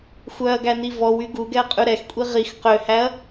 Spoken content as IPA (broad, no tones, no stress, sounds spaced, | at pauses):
xʷ œ ɐ̯ ɡ æ n i v ɔ w y ɡ u ɡ ɛ ɐ̯ qʼ ʉ ɾ ɛ x kʷʼ i ʁ i x q ø h æ ɐ̯